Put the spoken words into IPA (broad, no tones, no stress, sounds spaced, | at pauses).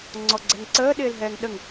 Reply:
ŋ͡ǀ ɔ ɡ͡ǀ ɛ ŋ ǀ əː ɗ ɪː l ɦ ɛː ŋ ɗ ə ŋ